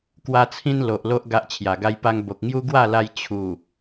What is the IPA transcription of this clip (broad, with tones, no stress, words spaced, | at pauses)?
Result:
kwa˦t͡sʰĩ˦n lo˨ʔlo˦ʔ ɡa˦ʔt͡ɕʰja˨˩ɡa˦jpa˦ŋ bo˨k̚ŋju˦ ɡwa˥˧la˧j t͡ɕʰu˨˩